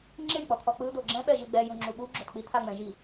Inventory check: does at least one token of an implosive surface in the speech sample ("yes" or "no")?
yes